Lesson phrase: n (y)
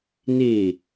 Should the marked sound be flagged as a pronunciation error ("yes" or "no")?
yes